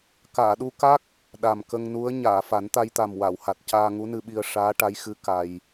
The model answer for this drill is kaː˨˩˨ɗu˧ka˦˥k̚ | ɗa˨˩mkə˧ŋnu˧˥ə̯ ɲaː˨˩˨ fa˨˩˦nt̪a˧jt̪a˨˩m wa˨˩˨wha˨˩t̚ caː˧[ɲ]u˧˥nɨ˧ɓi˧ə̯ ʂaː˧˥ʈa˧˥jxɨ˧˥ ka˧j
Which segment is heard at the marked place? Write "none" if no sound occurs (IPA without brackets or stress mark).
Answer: ŋ